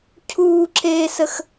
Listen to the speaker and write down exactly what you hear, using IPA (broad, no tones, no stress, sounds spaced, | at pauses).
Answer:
cʰ uː ǁ eː s ə x